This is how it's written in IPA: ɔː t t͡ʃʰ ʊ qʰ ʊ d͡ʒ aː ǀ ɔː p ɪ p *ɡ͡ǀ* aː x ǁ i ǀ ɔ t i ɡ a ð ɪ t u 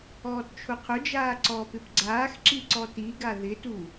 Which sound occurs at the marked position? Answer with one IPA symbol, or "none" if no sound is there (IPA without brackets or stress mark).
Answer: ɡ͡ǀ